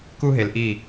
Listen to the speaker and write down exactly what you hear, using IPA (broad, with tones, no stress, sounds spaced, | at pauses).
k u˦ ɦ e˨ l ʔ i˦˨